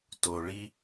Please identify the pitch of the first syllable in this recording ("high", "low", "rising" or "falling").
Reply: low